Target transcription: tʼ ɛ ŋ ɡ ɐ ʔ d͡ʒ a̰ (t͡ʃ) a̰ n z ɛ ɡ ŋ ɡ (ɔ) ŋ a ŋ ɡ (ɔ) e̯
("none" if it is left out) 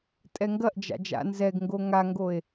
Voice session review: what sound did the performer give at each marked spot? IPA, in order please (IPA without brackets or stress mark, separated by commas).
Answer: d͡ʒ, o, o